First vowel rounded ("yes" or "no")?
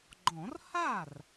yes